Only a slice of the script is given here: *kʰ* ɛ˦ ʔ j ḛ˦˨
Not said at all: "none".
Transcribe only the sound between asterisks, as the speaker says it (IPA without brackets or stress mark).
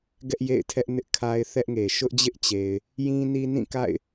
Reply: ɡ